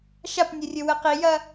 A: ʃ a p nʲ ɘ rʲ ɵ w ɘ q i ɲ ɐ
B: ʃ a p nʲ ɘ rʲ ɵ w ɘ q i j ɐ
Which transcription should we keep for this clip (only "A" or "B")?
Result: B